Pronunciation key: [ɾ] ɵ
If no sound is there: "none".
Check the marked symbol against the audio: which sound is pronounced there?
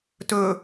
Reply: t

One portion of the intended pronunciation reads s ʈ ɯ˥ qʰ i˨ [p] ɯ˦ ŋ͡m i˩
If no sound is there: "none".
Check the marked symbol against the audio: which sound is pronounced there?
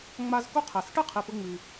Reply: p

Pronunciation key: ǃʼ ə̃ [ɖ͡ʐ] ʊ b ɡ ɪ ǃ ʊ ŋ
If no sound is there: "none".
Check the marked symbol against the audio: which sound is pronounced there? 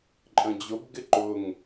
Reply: d͡ʑ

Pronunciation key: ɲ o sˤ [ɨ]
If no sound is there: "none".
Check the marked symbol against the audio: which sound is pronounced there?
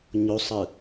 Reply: ɨ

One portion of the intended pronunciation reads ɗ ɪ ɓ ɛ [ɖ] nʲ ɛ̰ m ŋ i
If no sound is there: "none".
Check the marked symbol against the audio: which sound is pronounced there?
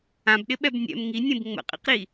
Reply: b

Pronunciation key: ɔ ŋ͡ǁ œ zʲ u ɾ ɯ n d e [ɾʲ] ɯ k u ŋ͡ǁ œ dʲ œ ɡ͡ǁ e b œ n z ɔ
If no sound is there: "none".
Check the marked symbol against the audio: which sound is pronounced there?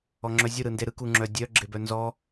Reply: ɾ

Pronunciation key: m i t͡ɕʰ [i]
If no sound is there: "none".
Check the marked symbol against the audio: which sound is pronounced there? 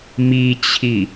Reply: i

